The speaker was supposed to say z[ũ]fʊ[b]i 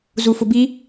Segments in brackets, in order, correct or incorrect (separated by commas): incorrect, correct